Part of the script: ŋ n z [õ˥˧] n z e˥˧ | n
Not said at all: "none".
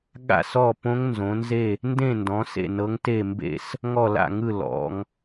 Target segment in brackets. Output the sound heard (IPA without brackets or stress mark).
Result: õ˨˦